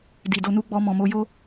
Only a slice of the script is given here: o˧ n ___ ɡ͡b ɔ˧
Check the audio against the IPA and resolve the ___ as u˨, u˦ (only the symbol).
u˦